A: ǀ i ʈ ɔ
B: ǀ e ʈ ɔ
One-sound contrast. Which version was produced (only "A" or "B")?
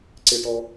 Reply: B